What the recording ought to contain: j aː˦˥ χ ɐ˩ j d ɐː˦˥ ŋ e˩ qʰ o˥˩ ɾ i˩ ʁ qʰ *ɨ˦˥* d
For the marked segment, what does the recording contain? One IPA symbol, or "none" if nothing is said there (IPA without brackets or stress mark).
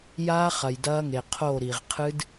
ɨ˦˥